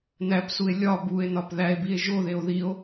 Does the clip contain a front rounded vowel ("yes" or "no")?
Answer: no